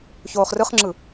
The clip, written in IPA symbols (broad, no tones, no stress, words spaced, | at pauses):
çoːχrɯχŋ͡ǁɯ